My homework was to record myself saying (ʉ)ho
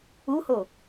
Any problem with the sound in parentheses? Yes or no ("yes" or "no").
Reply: yes